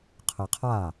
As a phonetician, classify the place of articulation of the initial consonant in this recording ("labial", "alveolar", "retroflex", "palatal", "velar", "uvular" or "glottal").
uvular